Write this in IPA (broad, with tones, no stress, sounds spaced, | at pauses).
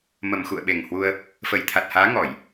m ə˨˩ m x ṵ˧˨ ə̯ ɓ e˨˩ ŋ h w u˧ ə̯ | f ə˧˩ j t̪ʰ a˨˩ t̚ h aː˨˦ ŋ ɔ˧˩˨ j